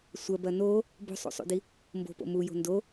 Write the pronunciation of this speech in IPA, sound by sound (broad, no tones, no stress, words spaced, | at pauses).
sʷɐbɐ no | bo̤sˤṵsˤṵdi | mbo̤po̰ mujo̤ ndo